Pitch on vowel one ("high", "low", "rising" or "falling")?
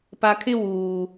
low